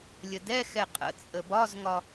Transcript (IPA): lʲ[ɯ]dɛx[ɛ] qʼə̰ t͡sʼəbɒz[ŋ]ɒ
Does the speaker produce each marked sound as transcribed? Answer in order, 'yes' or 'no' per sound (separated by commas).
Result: no, yes, yes